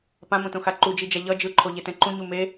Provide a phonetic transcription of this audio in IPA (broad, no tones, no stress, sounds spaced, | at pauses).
p ã m õ t õ x a ǃ u d͡ʒ i d͡ʒ a ʎ ʌ d͡ʒ ɯ ǃʰ o ʎ e t ɛ̃ ǃ ũ ɲ u m e